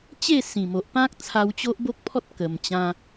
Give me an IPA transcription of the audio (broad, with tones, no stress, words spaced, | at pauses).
t͡ɕe˥˧ sĩ˨˩mo˨ʔpã˦k̚ t͡sʰa˧wt͡ɕo˦ʔbo˦k̚pʰɔ˦t̚ kə˨˩mt͡ɕã˧